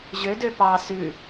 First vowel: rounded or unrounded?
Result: rounded